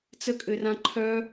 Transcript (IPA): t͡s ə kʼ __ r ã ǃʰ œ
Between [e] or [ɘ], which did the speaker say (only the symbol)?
ɘ